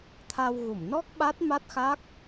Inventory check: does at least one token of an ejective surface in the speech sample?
no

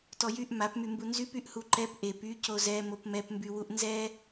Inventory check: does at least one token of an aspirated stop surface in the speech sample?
no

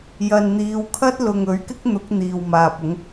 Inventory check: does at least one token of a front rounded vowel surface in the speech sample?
no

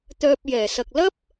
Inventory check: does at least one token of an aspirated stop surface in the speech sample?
no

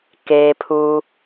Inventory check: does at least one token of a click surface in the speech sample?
no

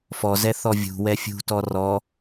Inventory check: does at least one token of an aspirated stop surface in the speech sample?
no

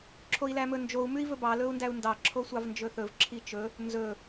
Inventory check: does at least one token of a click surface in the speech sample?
yes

